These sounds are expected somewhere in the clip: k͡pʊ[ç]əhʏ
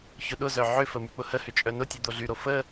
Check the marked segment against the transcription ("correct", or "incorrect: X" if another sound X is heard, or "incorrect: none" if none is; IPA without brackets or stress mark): incorrect: h